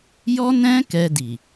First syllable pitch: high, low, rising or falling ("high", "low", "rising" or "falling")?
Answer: high